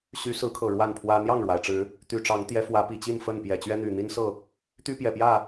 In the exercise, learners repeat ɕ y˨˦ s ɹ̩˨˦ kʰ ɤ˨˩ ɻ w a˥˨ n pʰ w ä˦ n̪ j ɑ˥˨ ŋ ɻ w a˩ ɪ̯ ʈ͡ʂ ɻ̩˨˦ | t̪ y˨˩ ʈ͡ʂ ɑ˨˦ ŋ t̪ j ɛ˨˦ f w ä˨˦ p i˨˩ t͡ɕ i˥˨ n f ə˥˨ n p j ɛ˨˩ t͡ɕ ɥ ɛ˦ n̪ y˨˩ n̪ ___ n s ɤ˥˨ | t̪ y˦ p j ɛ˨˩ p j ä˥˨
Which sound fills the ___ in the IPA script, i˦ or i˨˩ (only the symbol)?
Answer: i˦